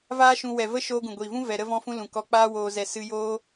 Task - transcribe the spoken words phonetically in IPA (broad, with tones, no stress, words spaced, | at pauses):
vaː˦ʃũ˧ wɛ˨və˦ ʃoː˧ɡũ˨ɡʷiː˨vũ˦ vɛ˧ ɾə˧vɔ̃˧fũ˧ lũ˨kɔ˧k͡paː˦ woː˧zɛ˧ sɨ˧joː˦